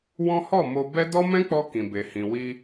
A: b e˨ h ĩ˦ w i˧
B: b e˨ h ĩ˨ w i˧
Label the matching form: B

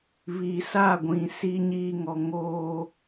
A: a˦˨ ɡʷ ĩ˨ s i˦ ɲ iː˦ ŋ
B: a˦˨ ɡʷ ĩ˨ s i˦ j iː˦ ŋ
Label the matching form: A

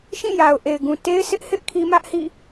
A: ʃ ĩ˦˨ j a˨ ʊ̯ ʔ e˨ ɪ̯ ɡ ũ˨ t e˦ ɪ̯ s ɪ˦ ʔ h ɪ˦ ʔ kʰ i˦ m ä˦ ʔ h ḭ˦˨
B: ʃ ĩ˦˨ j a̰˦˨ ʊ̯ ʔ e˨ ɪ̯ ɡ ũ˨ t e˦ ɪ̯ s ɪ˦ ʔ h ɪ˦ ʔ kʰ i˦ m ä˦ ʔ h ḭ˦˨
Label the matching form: A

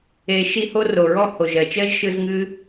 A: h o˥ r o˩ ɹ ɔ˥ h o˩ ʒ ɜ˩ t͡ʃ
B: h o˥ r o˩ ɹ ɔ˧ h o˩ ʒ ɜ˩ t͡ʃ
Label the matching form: A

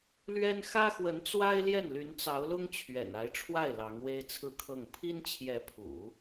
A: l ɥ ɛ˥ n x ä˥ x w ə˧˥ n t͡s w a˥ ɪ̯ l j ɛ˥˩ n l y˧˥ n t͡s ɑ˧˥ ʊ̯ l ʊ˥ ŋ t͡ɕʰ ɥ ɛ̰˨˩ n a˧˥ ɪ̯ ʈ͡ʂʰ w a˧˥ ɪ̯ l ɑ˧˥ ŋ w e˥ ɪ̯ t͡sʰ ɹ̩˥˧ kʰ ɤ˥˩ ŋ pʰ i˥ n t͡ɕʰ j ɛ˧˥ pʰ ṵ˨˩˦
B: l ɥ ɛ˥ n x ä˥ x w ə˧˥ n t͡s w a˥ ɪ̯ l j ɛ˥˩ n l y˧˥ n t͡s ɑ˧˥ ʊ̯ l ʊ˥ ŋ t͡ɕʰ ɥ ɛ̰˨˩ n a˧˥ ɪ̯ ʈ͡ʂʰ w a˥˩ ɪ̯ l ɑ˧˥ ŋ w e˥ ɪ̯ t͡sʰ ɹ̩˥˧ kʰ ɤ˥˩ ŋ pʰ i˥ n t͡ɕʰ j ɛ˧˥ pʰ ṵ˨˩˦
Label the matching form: B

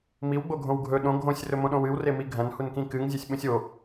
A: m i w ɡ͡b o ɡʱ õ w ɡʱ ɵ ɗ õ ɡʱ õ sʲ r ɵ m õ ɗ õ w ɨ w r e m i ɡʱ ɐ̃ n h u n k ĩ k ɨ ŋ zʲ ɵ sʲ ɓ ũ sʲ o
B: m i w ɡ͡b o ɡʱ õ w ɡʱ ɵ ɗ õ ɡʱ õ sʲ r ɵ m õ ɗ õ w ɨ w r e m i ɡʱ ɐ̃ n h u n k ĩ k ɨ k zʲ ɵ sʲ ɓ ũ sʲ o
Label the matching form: A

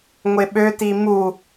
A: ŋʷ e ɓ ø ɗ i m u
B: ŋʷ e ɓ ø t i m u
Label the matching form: B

